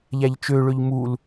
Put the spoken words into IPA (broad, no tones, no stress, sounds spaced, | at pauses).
ʎ æ ʎ t͡ʃ ø ɭ ø ʎ m u l